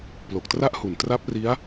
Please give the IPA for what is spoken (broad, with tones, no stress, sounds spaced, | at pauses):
p l o˨˩ k̚ t r a˥˩ ʔ h u˨˩ n t r a˦˥ p̚ r i˦˥ a̯